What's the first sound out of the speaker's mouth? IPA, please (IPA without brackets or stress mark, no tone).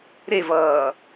ɾ